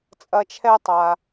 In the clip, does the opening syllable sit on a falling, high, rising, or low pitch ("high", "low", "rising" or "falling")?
high